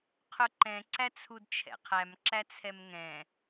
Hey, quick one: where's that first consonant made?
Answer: uvula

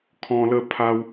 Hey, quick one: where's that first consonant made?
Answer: velum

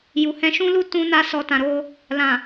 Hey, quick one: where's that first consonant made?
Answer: palate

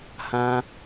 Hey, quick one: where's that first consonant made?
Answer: throat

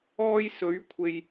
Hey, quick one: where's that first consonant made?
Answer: palate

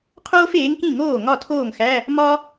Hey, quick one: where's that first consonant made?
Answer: uvula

